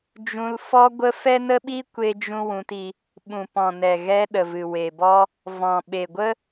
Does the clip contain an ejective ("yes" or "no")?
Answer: no